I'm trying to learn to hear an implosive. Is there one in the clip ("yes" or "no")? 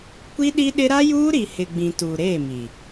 yes